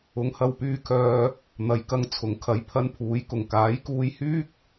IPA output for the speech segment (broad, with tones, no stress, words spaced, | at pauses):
ʊ˨˧ŋhɐ˧wpyː˧ kʰœː˧ | n̪ɐ˨jkɐ˧ŋ t͡sʰʊ˨˥ŋ kʰɐ˨˥j pʰɐ˧npʰuː˨˥jkʊ˨˩ŋ kaː˨˥jkuː˧jhyː˥k̚